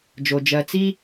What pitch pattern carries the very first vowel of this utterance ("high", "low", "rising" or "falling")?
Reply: low